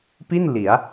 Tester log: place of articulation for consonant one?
labial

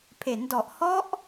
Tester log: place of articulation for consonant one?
labial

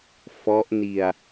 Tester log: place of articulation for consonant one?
labial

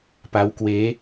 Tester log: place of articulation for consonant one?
labial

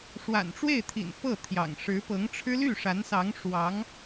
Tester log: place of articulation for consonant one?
retroflex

